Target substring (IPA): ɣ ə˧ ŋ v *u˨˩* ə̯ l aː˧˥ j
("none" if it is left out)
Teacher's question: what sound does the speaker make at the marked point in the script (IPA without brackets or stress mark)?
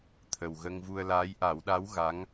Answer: u˧